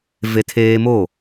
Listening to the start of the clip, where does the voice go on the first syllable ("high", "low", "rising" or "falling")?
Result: high